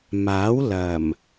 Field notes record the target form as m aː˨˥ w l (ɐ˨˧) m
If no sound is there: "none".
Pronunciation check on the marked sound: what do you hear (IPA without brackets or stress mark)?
ɐ˨˩